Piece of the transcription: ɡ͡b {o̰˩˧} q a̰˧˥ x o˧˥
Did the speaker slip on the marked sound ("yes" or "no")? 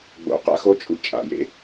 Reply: no